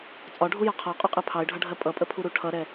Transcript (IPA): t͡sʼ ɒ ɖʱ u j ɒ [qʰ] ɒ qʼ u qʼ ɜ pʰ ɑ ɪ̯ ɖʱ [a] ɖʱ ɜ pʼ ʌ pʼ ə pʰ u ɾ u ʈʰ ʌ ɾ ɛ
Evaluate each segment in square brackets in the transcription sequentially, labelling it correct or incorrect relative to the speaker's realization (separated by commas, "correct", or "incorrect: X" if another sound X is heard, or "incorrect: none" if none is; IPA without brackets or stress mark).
correct, incorrect: ʌ